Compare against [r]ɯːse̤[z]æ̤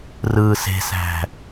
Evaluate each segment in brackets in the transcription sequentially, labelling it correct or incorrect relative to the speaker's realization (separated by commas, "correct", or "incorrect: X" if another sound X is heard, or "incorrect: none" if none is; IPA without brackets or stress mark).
correct, incorrect: s